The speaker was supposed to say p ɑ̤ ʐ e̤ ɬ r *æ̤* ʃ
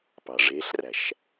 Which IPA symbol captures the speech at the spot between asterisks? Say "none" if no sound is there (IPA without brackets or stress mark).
æ̤